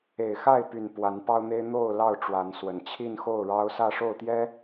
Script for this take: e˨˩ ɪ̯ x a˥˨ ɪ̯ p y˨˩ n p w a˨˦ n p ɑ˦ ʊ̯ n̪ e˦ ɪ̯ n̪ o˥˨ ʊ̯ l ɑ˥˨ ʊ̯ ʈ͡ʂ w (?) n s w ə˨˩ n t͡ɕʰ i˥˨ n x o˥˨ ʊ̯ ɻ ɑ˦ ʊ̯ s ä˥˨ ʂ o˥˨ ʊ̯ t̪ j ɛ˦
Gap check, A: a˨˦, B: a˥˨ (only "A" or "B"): A